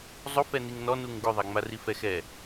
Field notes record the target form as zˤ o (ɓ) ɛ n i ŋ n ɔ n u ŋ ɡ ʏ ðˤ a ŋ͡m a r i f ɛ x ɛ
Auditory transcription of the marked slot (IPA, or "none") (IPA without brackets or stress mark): f